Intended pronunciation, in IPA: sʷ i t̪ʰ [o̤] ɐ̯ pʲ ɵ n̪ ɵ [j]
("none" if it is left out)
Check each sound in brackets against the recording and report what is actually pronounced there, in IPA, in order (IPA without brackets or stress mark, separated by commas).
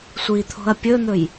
o̤, j